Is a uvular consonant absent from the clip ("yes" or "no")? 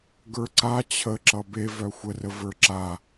yes